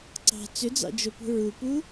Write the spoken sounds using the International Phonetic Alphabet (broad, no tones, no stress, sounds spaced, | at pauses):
ǀ ɑ̤ t͡s ʏ d͡z ɑ̰ d͡ʒ o p ṳ ɹ u p u